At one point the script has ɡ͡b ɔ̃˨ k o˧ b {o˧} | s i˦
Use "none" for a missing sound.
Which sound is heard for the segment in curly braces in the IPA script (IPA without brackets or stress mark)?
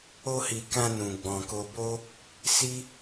o˦